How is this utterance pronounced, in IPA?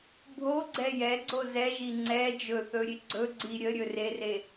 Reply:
bʱ o ɡ͡ǀ ɛ j ɛ ɡ͡ǀ o z ɛ ʒ i ŋ͡ǀ ɛ d͡ʒ ɵ θ ɵ ɾʲ e ɡ͡ǀ ɵ ɡ͡ǀ i ɾʲ ə ɾʲ ɵ r e r e

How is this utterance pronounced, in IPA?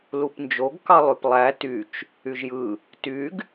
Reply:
l u p n d͡ʒ o ɡ k ɑ lˠ y p lˠ æ t y t͡ʃ | y ʒ j ɯ | t y ɡ

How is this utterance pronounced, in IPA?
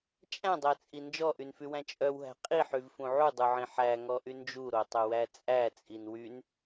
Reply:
t͡ʃʼ æ̃ dˤ æ t͡sʼ i n d͡ʒ ɔ ʔ y n f y w æ̃ t͡ʃʼ œ w ɦ æ̤ qʼ i ħ y v f ũ ʕ u dˤ u ʕ ĩ ħ æ ŋ ɔ ʔ y n d͡ʒ u ɾ o tˤ œ w æ t͡sʼ æ t͡sʼ i n w y n

